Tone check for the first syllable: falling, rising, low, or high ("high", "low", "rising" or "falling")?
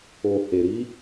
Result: low